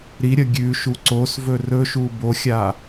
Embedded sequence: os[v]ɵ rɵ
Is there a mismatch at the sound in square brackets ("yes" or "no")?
no